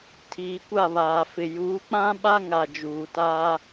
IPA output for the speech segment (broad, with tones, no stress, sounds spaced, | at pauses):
tʰ iː˨ kʷ a˦˨ β aː˨ f ɪ˨ j uː˨˦ k͡p ã˦ ɓ a˦ ŋ a˨ d͡ʒ uː˨ t aː˦